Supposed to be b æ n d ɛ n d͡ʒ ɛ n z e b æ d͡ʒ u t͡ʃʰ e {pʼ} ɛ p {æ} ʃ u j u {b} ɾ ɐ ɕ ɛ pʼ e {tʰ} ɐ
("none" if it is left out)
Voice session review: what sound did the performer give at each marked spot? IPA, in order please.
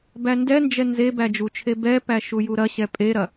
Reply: b, æ, none, ɾ

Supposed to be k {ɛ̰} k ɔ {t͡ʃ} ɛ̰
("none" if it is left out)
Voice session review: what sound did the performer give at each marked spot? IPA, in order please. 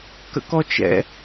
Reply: ə̰, t͡ʃ

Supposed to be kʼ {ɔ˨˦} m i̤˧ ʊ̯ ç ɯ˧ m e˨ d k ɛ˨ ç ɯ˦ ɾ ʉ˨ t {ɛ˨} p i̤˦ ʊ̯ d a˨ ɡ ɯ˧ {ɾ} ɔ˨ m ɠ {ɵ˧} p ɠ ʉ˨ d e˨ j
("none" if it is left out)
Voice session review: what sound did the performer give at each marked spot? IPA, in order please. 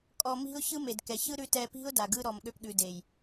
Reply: ɔ˨, ɛ˨, ɾ, ø˧

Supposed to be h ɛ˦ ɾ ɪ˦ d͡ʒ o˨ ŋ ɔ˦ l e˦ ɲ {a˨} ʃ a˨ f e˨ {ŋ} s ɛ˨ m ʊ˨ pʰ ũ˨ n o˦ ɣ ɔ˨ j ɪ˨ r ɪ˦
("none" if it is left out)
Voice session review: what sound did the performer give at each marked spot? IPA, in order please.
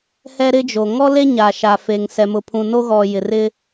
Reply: a˨, ŋ

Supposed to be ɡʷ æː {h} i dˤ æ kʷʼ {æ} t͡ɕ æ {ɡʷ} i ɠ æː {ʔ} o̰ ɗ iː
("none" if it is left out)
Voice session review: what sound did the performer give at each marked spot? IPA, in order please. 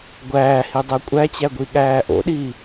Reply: h, æ, ɡʷ, ʔ

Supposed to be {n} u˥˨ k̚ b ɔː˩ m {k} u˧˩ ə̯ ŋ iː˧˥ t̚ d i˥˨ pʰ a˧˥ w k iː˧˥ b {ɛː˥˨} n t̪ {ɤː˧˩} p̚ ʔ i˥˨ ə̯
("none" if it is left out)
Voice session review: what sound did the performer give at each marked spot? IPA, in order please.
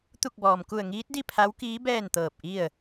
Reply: t̪, k, ɛː˥˨, ɤː˧˩

